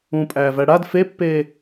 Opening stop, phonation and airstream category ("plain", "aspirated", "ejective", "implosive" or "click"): ejective